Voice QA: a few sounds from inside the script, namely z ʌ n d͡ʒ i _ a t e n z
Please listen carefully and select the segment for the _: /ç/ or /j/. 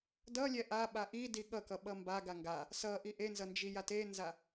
j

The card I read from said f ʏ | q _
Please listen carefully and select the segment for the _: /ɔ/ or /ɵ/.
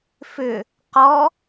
ɔ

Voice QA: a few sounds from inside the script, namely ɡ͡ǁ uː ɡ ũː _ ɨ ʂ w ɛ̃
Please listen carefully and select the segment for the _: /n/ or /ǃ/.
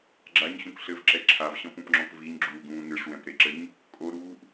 n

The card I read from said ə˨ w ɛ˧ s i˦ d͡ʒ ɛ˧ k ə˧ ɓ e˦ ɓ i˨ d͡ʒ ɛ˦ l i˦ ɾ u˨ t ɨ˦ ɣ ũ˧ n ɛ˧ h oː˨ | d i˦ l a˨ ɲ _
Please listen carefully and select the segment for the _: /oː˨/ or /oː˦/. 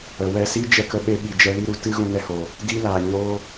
oː˦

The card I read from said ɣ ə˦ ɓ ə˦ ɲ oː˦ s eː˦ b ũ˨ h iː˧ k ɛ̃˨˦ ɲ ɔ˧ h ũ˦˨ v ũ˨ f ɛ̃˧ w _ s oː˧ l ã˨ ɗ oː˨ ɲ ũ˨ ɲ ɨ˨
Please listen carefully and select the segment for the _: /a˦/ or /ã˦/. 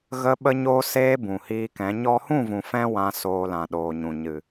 ã˦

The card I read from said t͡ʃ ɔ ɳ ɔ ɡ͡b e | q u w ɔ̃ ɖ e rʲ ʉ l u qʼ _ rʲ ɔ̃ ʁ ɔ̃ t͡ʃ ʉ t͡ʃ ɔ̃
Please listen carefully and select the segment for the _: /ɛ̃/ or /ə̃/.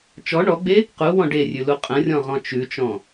ə̃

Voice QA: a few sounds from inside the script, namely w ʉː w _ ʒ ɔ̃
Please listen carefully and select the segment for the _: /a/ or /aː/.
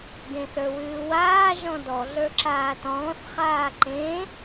aː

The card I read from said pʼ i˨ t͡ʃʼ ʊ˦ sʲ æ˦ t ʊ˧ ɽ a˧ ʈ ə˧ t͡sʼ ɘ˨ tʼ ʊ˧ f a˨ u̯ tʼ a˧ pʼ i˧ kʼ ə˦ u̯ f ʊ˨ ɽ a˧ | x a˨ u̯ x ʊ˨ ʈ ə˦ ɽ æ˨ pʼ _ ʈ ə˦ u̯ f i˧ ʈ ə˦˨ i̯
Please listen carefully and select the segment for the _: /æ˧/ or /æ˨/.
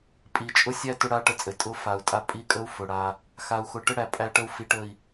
æ˧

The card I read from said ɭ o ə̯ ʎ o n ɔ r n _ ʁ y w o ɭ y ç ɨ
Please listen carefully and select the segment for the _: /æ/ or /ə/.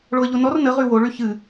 ə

